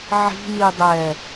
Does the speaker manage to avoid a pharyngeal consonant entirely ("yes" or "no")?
no